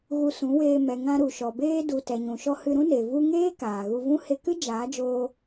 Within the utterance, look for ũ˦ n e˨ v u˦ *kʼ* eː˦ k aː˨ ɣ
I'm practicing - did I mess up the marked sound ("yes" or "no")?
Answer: yes